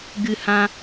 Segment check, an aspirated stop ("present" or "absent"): absent